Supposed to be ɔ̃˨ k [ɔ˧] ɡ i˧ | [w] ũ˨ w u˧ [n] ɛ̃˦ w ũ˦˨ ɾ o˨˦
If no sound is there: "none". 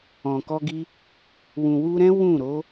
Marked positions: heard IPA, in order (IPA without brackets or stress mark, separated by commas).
ɔ˧, w, ɾ